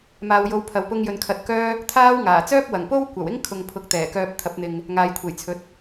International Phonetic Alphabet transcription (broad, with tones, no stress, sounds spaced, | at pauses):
m aː˨ w j o˨˧ w pʰ ɐ˨ w p ʊ˧ ŋ j ɵ˨ n kʰ ɐ˧ t̚ k œː˥ | t̪ʰ aː˥ w ŋ aː˨˩ t͡s œː˥ p̚ w ɐ˨˩ ŋ p o˥ w kʷ ɐ˨˩ w ɪ˥ ŋ kʰ ʊ˨ ŋ pʰ ʊ˨˥ k̚ t̪ ɛː˨˩ k œː˧ p̚ t̪ʰ ɐ˨˥ p̚ n̪ ɪ˨ ŋ | ŋ aː˨ j kʷʰ e˨˩ j t͡sʰ ɵ˨˥ t̚